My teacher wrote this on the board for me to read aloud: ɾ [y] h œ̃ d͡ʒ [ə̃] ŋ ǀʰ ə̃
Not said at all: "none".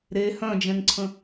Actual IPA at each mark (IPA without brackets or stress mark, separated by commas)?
e, ɛ̃